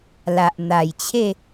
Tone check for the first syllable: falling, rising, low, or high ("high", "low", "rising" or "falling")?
low